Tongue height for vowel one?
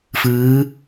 high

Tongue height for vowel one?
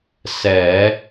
mid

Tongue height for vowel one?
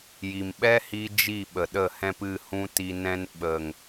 high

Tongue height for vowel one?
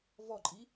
mid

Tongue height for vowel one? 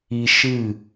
high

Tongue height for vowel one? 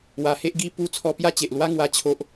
low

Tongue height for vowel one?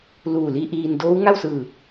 high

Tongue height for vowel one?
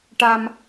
low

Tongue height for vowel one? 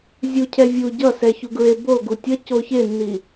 high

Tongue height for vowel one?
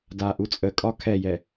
low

